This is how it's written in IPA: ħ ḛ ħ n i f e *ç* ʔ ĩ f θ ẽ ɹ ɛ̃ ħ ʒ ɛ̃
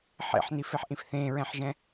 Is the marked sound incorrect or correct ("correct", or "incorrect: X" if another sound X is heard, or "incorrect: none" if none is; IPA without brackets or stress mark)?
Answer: incorrect: ħ